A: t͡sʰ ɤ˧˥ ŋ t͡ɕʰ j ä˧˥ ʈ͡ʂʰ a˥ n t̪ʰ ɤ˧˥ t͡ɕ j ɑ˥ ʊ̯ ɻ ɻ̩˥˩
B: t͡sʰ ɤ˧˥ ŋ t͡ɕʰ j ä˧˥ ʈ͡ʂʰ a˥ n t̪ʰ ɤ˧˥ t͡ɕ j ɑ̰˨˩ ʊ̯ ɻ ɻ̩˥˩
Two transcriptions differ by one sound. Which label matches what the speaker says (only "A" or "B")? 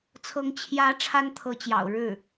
B